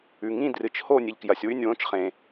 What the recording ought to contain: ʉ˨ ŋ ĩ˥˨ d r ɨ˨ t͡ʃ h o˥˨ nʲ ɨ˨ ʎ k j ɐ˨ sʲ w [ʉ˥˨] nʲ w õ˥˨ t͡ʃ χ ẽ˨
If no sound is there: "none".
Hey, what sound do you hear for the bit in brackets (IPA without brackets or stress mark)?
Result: ʉ˥˨